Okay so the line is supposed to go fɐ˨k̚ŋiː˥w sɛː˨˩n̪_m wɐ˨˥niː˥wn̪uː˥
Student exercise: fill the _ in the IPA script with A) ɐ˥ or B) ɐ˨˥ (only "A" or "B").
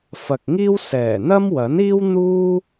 A